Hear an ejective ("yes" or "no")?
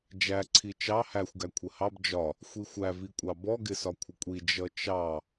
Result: yes